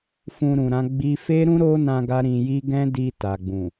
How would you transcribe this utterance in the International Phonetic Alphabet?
fũ˧ɾũ˨ɾã˨˦ɡ͡bi˦ fe˦ɾũ˦ɾo˦nã˧ ɡa˦ɾĩ˧ji˦ ɡɛ̃˦di˧ ta˨ɡ͡bũ˨

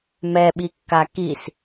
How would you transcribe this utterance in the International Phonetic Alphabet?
mɛɓikːa kis

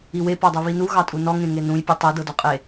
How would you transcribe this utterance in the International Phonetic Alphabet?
iwe pɔdˤuβinu ɣɑtʼunɔ ŋẽŋenũj pʲʉtˤe dɤdɔqʼe

